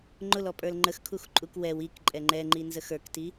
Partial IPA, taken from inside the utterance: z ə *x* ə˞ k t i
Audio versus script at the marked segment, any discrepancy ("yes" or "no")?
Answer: no